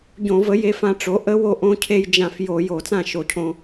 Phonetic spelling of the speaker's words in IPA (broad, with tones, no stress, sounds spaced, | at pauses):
ɟ õ˧˩˧ v ə˩˥ j e˧ f ã˧ ʈ͡ʂ o˩˥ ʔ ə˧˥ w o˧ ʔ õ˧˥ cʰ e˧ j d͡ʒ ã˧˩˧ f j o˧˩˧ j o˧˩˧ t͡s ã˥˩ ʃ o˧˩˧ cʰ õ˧